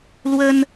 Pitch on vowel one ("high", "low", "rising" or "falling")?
high